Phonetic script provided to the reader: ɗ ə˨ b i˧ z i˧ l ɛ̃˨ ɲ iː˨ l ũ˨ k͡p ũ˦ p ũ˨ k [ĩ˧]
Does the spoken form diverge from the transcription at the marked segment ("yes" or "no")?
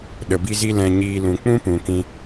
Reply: no